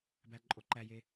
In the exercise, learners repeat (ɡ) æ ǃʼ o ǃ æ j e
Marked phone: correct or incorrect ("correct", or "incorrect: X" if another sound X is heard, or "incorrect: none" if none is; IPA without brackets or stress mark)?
incorrect: b